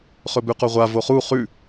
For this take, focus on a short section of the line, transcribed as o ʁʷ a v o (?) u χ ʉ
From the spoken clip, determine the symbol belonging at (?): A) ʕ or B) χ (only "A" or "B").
B